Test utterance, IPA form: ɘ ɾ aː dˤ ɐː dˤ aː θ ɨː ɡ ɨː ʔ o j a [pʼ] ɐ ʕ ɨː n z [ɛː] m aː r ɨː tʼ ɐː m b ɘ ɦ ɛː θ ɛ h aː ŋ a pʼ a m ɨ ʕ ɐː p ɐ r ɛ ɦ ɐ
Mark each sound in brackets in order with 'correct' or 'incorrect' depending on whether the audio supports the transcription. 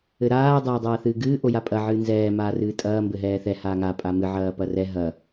correct, correct

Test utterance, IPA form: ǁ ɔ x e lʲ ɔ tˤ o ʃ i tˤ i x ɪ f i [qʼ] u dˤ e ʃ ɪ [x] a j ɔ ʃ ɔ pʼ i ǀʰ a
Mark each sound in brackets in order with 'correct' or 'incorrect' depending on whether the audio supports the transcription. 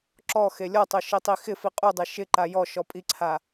correct, incorrect

